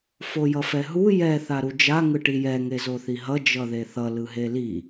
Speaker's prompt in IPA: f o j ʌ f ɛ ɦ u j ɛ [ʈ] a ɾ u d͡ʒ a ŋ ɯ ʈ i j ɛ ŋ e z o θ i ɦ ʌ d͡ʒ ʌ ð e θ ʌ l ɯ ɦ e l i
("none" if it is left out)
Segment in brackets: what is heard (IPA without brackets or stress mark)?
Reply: θ